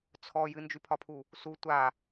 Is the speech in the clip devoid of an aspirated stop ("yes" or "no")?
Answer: no